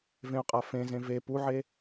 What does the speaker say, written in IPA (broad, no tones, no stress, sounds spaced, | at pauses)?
v ẽ ʊ̯ qʼ a f ẽ z ẽ v e p u ʕ e